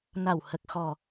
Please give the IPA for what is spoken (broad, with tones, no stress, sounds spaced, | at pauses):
n a˨˩ w h ə˨˩ k̚ x ɔ˨˩